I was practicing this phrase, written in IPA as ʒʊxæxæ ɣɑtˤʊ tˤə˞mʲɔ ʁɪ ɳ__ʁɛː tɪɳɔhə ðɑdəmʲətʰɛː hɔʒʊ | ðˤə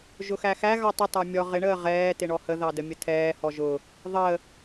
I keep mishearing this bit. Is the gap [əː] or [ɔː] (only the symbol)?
əː